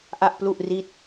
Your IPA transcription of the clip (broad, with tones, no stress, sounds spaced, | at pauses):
ʔ a˥˩ ʔ p l u˥˩ ʔ r i˥˩ t̚